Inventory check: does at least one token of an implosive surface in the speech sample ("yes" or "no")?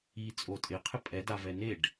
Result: no